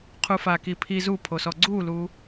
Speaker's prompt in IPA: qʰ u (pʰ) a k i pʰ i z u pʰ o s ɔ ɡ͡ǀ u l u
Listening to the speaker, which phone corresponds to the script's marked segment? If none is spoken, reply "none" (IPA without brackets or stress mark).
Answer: f